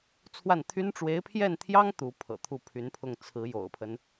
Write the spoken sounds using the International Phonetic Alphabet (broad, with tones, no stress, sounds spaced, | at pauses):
t͡sʰ w a˥˩ n t̪ʰ y˥ n ʈ͡ʂ w e˧˥ ɪ̯ pʰ j ɛ˥˩ n t̪ʰ j ɑ˥ ŋ t̪ u˧˥ pʰ ɤ̰˨˩ t̪ʰ u˥˩ pʰ y˧˥ n pʰ ʊ˥˩ ŋ t͡sʰ ɹ̩˧˥ j o̰˨˩ ʊ̯ pʰ ə˦ n